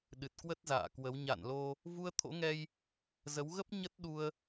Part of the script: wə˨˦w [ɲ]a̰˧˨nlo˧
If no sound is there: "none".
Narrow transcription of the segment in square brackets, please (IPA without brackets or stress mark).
ɲ